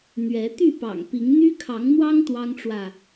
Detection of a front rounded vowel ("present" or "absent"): present